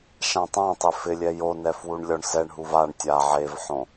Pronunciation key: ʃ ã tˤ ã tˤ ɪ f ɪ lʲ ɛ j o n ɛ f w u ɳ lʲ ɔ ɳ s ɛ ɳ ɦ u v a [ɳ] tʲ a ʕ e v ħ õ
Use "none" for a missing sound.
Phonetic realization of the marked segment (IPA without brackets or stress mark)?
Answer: ɳ